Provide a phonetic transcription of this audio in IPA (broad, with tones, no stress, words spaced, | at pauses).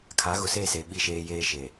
kʰa˨˦ɣʊ˨se˦˨se˨ ɓi˦˨ʃeː˦jeː˦ ʃe˨